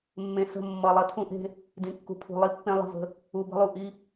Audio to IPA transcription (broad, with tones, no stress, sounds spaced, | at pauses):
mː ẽ˨ s ə̤˦˨ mː ʌ˨ lˠ ʌ˦ tʰ ũ˦ ʔ e̤˦ | d ĩ˨ kː ṳ˨ pʰ ṳ˨ lˠ i˦ pː ẽ˦ lˠ ə̤˦˨ v ə̤˦ | u˨ b ə̤˦ lˠ u˨ ʔ i˦